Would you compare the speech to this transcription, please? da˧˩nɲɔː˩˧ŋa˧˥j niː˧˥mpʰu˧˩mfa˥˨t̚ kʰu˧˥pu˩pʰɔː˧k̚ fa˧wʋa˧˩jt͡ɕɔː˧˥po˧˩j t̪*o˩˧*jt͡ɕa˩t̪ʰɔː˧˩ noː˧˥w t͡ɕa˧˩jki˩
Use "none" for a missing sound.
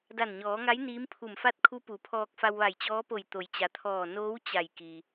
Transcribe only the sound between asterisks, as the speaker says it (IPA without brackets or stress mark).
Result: o˩˧